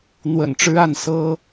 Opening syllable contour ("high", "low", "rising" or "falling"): low